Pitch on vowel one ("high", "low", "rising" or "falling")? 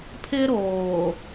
high